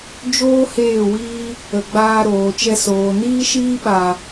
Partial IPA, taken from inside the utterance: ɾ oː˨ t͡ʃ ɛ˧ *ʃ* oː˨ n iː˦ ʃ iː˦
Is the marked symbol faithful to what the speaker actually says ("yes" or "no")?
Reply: no